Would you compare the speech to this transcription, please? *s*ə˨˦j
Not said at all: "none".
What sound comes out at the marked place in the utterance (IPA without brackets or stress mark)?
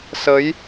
s